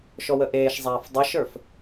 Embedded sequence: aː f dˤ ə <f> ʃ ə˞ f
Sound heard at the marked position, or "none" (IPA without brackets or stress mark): none